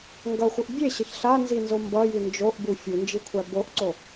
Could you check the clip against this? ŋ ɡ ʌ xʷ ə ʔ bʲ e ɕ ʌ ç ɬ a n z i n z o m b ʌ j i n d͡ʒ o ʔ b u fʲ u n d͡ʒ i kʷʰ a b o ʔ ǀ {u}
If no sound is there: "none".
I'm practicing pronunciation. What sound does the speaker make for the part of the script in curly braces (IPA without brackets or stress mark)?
o